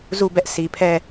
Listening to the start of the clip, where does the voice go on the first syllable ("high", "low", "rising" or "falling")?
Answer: falling